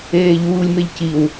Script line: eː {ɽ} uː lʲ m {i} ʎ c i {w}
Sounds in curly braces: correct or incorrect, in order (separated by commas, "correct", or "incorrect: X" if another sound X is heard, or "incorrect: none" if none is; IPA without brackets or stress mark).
incorrect: ʎ, incorrect: e, correct